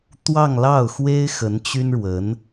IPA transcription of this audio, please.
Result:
t̪ w ɑ˥˧ ŋ l ɑ˥˩ ʊ̯ x w e˥ ɪ̯ x ə˧˥ n t͡ɕ y˥ n ɻ w ə˧˥ n

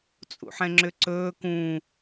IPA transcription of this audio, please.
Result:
t͡sʼ ṵ ħ ɛ̃ ŋ͡ǁ ʏ ǀ ɵː k ũː

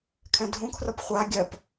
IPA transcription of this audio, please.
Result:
kʰ ɛ̃ dʱ ũ kʰ r ʌ p χʷ a ɡʲ ɜ p

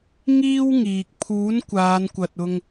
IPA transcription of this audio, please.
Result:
ŋ iː˥ w ŋ iː˨ k̚ pʰ uː˨˥ n kʷ aː˨˧ n kʷ ɐ˨ t̚ ʊ˧ ŋ

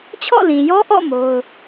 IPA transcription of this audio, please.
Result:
t͡ɕʰ ɔ̰˦˨ l ĩ˨ j ɔ˦ ʔ ɔ̰˦˨ m o˦ ʊ̯

